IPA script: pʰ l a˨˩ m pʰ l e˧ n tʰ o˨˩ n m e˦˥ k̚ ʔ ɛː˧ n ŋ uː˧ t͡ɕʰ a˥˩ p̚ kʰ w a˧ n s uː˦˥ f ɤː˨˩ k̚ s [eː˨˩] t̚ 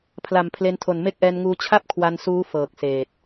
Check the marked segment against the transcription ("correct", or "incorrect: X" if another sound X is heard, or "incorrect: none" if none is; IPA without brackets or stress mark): correct